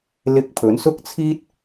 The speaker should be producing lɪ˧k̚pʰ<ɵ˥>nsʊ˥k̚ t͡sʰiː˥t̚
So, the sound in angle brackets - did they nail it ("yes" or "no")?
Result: no